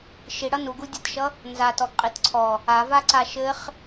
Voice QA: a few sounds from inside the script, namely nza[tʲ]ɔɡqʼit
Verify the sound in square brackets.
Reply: incorrect: t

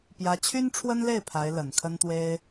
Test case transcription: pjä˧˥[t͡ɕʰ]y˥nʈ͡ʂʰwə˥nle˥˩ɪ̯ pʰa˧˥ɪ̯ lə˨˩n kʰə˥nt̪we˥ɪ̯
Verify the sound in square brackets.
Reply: correct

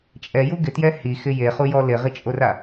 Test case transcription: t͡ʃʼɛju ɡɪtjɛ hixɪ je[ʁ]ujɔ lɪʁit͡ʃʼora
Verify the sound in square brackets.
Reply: incorrect: χ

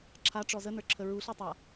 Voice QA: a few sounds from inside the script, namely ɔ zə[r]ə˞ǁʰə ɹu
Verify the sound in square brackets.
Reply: incorrect: n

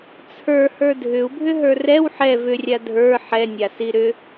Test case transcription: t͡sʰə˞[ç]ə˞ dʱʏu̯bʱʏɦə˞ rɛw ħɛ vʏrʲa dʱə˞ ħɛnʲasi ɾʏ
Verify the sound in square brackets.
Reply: incorrect: h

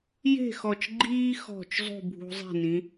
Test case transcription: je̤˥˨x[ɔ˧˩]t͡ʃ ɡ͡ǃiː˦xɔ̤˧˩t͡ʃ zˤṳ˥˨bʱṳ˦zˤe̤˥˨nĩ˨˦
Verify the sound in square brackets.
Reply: correct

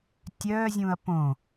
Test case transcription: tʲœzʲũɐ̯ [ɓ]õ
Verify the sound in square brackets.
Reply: incorrect: p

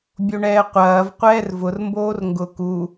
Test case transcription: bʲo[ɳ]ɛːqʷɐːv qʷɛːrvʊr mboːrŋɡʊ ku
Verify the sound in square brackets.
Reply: correct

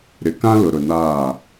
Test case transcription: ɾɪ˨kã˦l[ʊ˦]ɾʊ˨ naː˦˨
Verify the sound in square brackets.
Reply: incorrect: ʊ˨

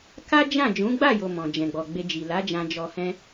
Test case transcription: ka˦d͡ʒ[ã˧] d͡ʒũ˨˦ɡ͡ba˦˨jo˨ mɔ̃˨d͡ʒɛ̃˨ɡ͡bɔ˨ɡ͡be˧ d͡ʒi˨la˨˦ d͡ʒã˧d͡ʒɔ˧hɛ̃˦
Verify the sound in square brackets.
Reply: incorrect: ã˦˨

